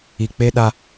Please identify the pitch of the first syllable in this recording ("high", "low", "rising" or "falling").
low